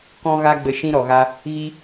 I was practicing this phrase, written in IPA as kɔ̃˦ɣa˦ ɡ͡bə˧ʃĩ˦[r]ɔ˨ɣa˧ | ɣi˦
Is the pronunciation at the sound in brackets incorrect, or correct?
incorrect